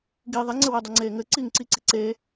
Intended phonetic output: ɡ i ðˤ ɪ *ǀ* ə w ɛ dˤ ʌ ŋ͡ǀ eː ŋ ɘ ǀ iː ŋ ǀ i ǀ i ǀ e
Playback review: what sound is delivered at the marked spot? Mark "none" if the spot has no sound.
ŋ͡ǀ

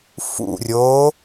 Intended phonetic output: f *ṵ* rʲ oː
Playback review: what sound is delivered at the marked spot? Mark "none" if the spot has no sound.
ṵ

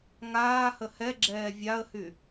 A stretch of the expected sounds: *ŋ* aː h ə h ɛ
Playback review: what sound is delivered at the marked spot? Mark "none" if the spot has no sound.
ŋ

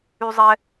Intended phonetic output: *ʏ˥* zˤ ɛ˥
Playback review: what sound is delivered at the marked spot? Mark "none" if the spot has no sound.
y˥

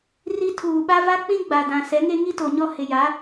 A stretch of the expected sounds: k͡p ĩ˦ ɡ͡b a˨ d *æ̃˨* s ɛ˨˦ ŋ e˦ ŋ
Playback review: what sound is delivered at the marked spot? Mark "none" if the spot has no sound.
ã˨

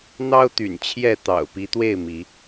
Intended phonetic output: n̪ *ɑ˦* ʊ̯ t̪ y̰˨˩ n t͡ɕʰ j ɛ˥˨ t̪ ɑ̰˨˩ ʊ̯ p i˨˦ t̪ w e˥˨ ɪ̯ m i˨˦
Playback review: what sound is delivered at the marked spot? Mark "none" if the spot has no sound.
ɑ˦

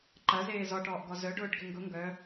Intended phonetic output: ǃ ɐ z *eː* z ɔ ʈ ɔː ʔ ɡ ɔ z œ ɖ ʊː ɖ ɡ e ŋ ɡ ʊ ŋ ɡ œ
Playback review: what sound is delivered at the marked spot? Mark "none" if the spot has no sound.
eː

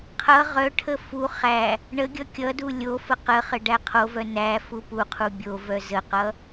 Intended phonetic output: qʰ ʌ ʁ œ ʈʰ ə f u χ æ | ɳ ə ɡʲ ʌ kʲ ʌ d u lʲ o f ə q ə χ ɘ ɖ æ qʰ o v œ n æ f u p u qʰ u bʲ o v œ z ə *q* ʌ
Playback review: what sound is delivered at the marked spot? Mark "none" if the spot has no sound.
q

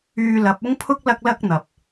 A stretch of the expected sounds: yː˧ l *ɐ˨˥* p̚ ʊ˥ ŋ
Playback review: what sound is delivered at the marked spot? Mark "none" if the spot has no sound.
ɐ˨˥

